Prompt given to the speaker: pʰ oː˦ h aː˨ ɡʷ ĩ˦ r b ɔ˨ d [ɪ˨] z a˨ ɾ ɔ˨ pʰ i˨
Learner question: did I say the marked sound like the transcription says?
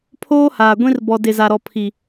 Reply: yes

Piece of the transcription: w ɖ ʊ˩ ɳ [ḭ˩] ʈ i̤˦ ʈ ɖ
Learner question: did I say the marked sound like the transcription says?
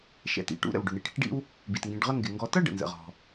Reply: no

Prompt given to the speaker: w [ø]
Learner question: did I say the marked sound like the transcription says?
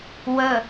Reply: no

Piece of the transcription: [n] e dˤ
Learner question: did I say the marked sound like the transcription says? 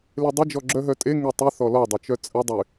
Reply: no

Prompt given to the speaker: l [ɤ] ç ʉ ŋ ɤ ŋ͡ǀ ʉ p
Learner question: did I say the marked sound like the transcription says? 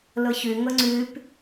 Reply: yes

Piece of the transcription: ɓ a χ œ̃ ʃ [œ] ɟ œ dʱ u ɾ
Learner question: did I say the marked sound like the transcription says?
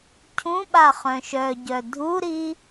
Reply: yes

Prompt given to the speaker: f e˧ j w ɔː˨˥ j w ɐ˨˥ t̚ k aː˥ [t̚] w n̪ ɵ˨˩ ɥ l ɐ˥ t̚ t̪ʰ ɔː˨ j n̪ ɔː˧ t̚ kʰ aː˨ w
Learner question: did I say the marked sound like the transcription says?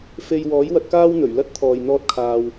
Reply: no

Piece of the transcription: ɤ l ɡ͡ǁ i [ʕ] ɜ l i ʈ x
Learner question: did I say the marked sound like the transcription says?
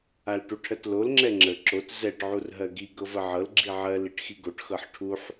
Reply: yes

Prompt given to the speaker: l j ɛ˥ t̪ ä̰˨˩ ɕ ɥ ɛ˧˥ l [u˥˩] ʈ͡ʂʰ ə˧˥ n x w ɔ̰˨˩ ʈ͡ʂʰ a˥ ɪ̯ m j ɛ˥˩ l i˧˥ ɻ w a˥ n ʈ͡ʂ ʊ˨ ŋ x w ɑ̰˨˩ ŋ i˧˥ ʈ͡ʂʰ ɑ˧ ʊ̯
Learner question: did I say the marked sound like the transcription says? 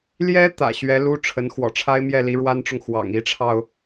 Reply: no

